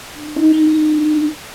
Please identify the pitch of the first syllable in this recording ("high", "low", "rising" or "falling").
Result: high